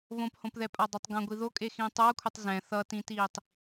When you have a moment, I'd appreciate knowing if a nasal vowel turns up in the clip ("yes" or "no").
yes